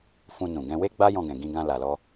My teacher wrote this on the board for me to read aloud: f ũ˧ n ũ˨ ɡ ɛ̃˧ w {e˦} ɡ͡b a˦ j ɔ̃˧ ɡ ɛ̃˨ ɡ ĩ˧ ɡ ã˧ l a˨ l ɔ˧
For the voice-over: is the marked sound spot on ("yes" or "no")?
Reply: yes